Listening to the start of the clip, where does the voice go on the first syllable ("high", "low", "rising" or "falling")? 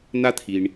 high